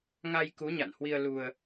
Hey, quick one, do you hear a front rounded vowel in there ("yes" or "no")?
no